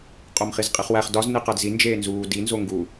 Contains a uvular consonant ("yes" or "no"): yes